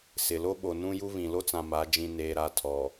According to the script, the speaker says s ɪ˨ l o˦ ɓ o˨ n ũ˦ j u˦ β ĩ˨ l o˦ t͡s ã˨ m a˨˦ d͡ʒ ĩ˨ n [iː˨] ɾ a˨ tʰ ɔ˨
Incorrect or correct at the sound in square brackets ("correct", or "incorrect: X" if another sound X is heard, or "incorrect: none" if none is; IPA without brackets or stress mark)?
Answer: incorrect: eː˨